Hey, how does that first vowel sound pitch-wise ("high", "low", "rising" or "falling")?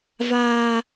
high